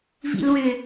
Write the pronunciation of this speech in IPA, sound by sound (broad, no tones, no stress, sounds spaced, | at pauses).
v ḭ l w ʏ